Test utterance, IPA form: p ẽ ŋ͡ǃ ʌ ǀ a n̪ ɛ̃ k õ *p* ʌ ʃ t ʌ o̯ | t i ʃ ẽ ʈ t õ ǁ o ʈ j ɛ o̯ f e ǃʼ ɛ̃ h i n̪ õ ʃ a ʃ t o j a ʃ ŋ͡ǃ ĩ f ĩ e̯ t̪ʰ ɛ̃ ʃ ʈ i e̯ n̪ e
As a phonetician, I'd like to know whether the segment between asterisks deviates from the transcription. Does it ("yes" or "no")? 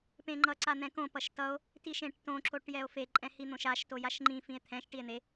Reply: no